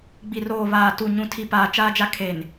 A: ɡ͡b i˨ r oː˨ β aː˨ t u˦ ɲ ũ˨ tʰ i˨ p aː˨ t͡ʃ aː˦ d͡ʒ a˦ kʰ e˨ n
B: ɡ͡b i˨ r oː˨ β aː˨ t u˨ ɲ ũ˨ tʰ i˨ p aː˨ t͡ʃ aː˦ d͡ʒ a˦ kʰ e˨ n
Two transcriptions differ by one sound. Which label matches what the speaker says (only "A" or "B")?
B